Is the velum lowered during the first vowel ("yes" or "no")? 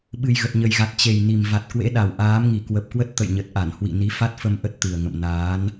no